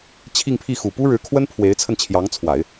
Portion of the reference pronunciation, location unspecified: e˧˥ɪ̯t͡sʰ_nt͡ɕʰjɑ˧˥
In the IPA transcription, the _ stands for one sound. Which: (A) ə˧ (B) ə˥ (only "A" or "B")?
A